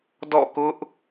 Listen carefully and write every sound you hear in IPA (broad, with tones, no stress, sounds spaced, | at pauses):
d ɔ̰˦˨ k ʊ˦ ʔ